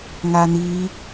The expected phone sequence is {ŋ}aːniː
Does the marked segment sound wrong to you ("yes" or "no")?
no